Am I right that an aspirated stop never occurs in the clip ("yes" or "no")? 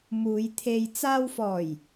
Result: no